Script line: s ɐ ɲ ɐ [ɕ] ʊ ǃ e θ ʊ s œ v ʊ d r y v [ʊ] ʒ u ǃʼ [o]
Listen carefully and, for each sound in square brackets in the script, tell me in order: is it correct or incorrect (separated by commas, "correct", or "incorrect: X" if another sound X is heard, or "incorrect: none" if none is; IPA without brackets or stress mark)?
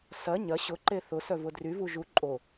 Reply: correct, incorrect: u, correct